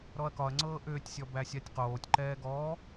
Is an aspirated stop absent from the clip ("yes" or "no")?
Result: yes